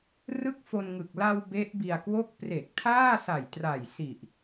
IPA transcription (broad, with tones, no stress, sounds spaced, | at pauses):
r ɯ˥˩ k̚ f o˧ n ŋ ɯ˨˩ k̚ l a˧ w b e˦˥ ʔ b i˧ a̯ k w o˥˩ k̚ p r e˨˩ k̚ tʰ aː˥˩ s a˨˩ j t r a˨˩ j s i˨˩ ʔ